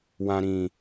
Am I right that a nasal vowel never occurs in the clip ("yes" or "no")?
no